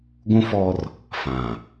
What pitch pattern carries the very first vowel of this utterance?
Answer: high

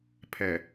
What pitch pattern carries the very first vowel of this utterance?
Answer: low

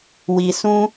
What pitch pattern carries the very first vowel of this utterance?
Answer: low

